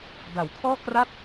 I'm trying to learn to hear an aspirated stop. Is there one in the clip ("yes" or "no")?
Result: yes